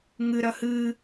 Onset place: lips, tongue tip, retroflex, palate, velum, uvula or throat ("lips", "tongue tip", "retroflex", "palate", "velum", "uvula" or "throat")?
velum